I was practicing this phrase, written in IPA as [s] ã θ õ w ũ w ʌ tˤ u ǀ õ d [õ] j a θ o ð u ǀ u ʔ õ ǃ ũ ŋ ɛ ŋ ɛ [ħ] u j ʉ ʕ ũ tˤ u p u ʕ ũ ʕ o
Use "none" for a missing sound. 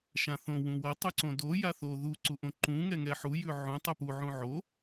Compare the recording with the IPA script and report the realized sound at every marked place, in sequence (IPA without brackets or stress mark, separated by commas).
ʃ, o, ħ